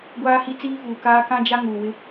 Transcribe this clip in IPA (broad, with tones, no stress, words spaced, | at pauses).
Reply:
ɡʷaː˦hi˦ t͡siː˦vuː˨kaː˦ kã˦d͡ʒa˦ ŋuː˨wɪ˦